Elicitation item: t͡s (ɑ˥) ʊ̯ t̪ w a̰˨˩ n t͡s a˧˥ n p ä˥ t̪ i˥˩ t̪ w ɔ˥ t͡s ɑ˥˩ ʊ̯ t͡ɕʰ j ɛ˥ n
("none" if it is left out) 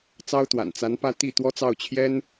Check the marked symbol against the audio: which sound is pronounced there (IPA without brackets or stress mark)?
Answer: ɑ˥